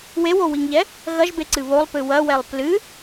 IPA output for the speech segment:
wewowiŋʎɛ | ɣɐʒbeǀɨ βolˠpɨ wɐwɛlˠ plɨ

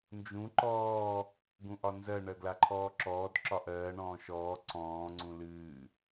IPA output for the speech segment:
nd͡ʒũ ǃɔː | ɡũʔɒnzɜ ɳɜɡlaǃʰɔːǁɔːd ǁɒʔɜːɳɔ̃ː ʃɔː ǀɔ̃ːŋ͡ǀũ lɨː

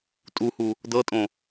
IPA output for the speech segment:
tʼuhu | dɤtʼõ

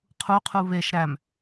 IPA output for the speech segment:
qʰuqʰu βeʃ ɾæm

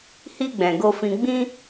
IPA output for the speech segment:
hi˧ɡ͡bɛ̃˨ ɡo˧fĩ˧ ɡ͡bĩ˧

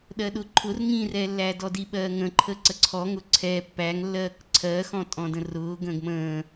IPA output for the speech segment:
ɗɜɗʊǃʰʊr ŋĩrɛlːæ dɔdiɓɜː ŋə̃ːǃʰə ǀəǀʰɔŋʊ ǀʰɛ pːæŋlːɜːk ǀʰɜːxɔ̃ tʼɔ̃də̃rʊː ɡə̃ːɡmə̃ː

